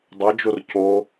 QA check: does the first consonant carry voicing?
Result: yes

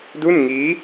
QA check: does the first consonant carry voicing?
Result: yes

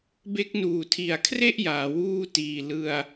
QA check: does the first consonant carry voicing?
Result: yes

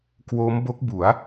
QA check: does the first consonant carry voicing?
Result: no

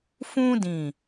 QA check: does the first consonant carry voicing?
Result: no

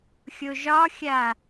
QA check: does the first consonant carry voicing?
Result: no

